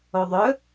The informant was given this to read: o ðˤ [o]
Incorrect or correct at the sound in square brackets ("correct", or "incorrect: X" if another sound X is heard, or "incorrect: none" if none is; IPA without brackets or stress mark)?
incorrect: ɵ